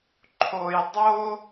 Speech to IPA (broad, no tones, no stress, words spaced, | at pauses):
ǃʰoj dˤo